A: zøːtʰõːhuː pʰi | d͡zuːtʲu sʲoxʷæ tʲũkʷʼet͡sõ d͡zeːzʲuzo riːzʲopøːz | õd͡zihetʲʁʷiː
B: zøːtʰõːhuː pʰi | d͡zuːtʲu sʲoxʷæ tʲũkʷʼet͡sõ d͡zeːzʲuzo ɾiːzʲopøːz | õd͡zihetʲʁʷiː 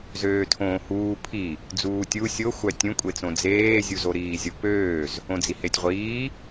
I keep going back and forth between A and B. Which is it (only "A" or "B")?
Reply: B